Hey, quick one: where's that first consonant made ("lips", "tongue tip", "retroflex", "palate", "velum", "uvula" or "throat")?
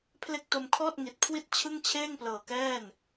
lips